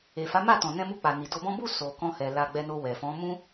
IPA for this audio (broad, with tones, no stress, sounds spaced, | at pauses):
e˨ f a˨˦ m a˦˨ t ɔ̃˨ n ɛ̃˧ m u˧ k͡p a˨ n i˨ d o˧ b ɔ̃˦ b u˦˨ s o˨ k ɔ̃˧ h ɛ˨ l a˧ ɡ͡b ɛ˧ n o˧ w ɛ˨ f ɔ̃˨˦ m ũ˦